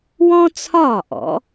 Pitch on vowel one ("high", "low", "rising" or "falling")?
high